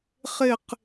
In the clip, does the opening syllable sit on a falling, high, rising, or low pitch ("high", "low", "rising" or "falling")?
falling